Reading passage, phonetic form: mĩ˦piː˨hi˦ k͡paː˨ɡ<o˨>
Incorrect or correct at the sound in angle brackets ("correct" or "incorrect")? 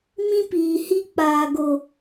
correct